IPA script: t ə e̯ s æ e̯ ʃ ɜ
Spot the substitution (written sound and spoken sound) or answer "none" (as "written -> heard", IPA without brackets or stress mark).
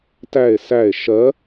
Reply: ə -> æ